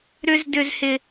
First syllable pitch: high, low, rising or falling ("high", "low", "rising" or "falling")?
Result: high